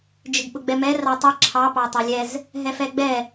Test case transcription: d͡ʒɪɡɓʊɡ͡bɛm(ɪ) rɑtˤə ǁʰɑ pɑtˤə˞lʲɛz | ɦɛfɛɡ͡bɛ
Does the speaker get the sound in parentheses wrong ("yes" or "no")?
yes